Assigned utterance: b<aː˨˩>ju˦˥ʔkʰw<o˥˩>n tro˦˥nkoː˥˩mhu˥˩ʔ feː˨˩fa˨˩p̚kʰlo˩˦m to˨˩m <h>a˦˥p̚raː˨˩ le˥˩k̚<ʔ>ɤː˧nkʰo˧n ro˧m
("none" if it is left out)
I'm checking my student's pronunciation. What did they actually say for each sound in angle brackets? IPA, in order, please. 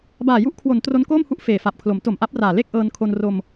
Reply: aː˨˩, o˩˦, ʔ, ʔ

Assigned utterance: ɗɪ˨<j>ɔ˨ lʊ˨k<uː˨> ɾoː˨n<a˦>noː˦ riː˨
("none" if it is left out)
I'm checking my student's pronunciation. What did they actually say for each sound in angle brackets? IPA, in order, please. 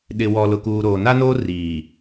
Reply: w, uː˨, a˦

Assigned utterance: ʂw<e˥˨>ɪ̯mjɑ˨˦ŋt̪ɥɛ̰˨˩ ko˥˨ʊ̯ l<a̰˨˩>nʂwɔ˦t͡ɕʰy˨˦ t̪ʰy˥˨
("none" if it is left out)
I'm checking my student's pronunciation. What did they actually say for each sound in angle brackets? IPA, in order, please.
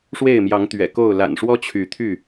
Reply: e˥˨, a̰˨˩

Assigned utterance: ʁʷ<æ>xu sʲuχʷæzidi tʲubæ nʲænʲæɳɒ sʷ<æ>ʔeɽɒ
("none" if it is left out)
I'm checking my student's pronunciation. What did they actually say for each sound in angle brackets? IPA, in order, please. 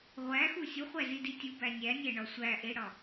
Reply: æ, æ

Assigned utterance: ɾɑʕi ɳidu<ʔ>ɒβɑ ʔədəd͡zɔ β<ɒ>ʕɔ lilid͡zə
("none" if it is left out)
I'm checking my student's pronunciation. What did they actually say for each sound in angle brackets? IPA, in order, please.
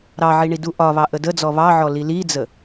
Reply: ʔ, ɑ

